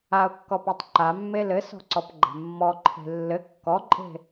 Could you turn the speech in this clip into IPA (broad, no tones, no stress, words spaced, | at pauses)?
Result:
aʊ̯kːɔpɔtˤ ǃamːe lɘsɔ̤ǀɔpɡ͡ǃa̤ mːɔǃʰe̤ lːɘ kːɔǃʼe̤